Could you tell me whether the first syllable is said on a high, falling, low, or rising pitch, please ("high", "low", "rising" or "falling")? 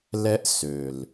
high